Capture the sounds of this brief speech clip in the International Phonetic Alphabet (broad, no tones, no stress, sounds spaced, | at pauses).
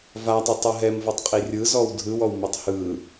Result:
v a tˤ ɯ tˤ ɯ ɦ ɛ m v o tˤ qʼ i rʲ ɯ z ɔ w dʱ ɯ w ɔ w m u tˤ h ɯ